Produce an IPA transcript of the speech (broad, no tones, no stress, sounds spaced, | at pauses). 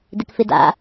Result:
d ɪ k f ɪ d a̰